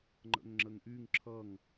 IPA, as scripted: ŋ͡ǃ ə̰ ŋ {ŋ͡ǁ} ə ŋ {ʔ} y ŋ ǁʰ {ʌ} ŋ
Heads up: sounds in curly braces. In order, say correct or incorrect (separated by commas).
correct, correct, correct